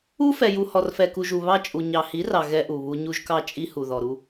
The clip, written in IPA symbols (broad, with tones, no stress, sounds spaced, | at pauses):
u˦ f ɛ˨ j u˨ h ɔ˨ r f ɛ˨ k u˨ ʒ u˨ β ɑ˦ t͡ʃʼ u˨ ɲ ɑ˨ h i˨˦ r ɑ˨ ɣ ɛ˦ ʔ u˨ β u˦ ɲ u˦ ʒ k ɑ˦ t͡ʃʼ i˦ h u˨ ð ɔ˨ ɾ u˦